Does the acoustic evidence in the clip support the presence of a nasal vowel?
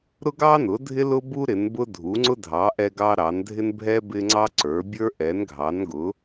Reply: no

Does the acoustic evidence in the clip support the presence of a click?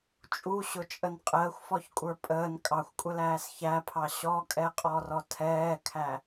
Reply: no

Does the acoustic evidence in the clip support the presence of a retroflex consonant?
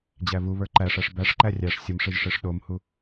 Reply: yes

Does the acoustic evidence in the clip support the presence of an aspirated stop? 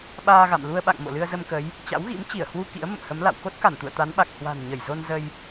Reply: no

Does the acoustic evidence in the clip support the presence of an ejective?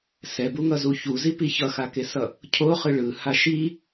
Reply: no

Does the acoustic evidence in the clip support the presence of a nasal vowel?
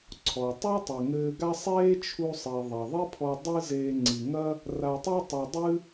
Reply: no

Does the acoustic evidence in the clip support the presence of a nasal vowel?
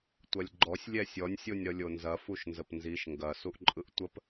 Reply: no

